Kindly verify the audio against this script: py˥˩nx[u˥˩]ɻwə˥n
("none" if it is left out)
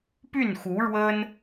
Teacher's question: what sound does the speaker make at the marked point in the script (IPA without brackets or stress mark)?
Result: u˧˥